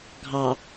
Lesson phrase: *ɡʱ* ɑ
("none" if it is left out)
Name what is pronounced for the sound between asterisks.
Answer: ɡʱ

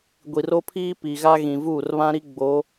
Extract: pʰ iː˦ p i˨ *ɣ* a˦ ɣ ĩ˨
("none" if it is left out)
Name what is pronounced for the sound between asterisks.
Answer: ɣ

